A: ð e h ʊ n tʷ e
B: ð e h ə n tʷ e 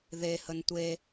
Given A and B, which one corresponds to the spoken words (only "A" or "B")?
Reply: B